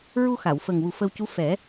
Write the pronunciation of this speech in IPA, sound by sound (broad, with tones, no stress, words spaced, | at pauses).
ɹu˧xa˨˩˨w fə˨˩ŋ wu˨˩ fə˧wcu˧˥ fɛ˨˩˦